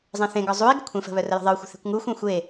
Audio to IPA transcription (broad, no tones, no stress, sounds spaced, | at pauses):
zˤ ẽ θ ẽ ɡ ɒ zˤ u i̯ ɡ ə̤ kʷʰ ẽ f ə̤ β œ r ə j ə̤ ðˤ ə u̯ xʷ ə̤ θ e̤ kʷ ŋ u xʷ ẽ xʷ e